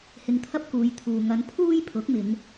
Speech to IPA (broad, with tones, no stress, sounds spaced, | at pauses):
h ɪ˧ ŋ t̪ʰ ɐ˥ p̚ k uː˨˧ j t̪ʰ uː˨ ŋ ɐ˧ n pʰ uː˥ j pʰ ʊ˨˥ k̚ m ɪ˨˧ ŋ